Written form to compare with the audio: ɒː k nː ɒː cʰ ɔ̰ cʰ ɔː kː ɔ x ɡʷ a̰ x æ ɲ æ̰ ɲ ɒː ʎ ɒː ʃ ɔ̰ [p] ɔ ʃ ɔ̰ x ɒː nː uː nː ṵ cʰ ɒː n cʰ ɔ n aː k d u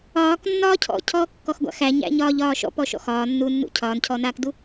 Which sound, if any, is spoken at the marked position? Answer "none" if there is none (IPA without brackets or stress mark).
p